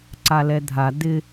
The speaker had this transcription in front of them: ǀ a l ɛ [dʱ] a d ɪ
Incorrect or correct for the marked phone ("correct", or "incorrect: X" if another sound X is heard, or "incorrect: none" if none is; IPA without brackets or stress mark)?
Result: correct